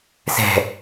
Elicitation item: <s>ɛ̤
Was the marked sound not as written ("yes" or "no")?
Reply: no